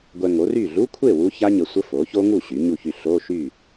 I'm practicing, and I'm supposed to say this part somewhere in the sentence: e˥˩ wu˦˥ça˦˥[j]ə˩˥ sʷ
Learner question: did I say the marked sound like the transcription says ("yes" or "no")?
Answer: no